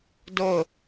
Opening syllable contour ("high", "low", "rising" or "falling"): falling